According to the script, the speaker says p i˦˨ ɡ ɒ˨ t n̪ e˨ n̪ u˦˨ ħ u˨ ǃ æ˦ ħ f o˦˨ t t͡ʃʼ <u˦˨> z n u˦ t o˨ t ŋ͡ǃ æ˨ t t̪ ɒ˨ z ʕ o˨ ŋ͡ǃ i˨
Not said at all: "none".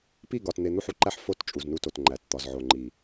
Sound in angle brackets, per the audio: u˨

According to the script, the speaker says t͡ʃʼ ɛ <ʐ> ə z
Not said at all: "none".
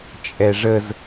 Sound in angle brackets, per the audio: ʐ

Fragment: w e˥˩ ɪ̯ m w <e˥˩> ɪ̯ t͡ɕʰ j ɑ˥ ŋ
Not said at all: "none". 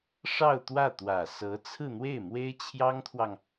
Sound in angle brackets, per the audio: e˥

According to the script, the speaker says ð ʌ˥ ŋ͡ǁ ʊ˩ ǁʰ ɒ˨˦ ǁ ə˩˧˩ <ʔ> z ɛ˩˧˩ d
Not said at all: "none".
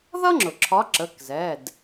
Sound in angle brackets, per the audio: k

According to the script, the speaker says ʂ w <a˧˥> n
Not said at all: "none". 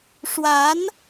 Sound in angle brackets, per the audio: a˧˥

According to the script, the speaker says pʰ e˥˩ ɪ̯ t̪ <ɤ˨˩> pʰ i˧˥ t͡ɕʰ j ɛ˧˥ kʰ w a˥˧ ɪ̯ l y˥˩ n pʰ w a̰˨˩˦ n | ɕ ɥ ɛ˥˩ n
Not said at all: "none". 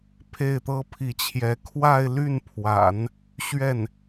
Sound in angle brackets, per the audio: ɤ˥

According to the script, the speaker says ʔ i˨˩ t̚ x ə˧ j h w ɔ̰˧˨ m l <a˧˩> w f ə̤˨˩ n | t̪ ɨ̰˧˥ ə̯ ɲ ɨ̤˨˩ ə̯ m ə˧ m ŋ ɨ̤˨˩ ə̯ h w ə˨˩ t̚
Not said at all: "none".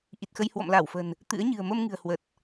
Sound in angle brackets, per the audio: a˧˩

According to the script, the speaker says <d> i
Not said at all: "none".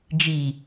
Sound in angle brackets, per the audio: d͡ʒ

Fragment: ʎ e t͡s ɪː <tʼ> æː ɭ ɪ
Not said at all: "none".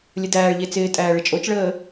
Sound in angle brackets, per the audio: tʼ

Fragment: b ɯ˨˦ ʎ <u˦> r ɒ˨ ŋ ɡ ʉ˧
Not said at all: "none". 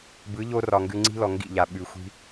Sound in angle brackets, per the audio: o˦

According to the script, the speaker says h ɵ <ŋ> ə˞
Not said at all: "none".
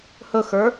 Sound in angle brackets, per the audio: x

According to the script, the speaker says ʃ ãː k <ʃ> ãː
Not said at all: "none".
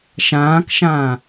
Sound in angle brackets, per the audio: ʃ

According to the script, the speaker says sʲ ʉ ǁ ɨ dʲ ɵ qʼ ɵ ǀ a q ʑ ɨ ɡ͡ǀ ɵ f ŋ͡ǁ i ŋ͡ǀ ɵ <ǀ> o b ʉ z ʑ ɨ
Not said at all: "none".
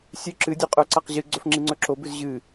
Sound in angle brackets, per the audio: ǁ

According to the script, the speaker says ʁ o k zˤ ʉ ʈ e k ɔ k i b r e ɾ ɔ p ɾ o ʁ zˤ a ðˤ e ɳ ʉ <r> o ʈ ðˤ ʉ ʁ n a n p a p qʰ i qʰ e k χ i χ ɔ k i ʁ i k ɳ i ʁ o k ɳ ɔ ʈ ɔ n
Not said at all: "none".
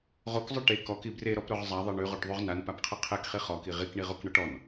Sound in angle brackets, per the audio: ʁ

